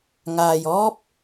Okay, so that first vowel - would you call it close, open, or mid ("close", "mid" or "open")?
open